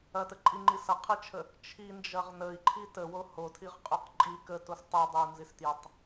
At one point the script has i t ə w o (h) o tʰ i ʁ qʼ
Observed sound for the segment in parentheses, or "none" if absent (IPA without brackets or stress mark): h